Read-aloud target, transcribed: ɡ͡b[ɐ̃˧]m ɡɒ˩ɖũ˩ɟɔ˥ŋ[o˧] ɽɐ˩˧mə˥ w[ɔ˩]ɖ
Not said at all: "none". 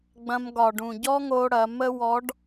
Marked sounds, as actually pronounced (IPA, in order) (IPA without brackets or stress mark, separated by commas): ɐ̃˧, o˧, ɔ˧˥